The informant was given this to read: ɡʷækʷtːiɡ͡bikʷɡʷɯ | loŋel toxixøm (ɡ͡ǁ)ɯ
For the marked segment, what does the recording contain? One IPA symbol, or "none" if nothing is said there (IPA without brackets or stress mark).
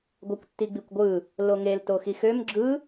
ɡ͡ǁ